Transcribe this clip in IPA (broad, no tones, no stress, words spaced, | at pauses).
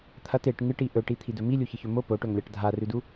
t̪ʰɐt eʈ ŋɨʈi ʔɵʈit̪ʰidɵ milʲuçɨçɵ mo poʈɵŋlʲaʈ dʱarʉdu